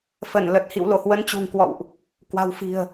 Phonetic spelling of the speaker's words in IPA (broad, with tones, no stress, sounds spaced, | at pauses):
f ə˧˩ n l ə˨˩ t̚ h ḭ˧˨ w l o˧˩ h w ə˨˦ n t͡ɕ ṳ˨˩ ŋ k w ɔ̰˧˨ w ʔ | k w a̤˨˩ w f i̤˨˩ ə̯